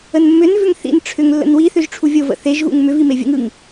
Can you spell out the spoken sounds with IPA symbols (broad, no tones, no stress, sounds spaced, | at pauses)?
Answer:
ə n mː ʏ n v ʏ ŋ θ ḭ n ʈ͡ʂʰ ʏ ŋ lː ə̰ n w i θ ʏ ʒ ʈ͡ʂʰ u vʲ o v ə̰ θ e ʒ ɣ ṵ ŋ m ʏ v i m e vʲ ə̰ ŋ ɯ ŋ